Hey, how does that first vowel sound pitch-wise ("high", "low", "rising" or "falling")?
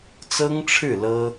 high